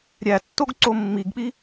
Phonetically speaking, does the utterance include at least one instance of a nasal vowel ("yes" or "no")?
no